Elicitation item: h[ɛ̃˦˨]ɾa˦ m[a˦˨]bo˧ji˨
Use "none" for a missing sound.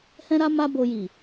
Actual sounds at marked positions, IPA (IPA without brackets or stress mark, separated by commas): ɛ̃˦, a˦